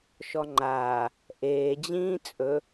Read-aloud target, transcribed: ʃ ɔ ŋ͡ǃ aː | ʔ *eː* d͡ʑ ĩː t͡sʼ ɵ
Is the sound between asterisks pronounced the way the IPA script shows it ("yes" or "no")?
yes